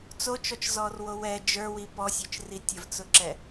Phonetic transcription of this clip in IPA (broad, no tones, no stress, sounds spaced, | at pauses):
t͡s o t͡ʃ ɔ t͡ʃ z ɔ r w o w ɛ d͡ʒ ə˞ w i p ɔ sʲ ə˞ t͡ʃ r i tʲ ə v t͡s ʊ ǁ ɛ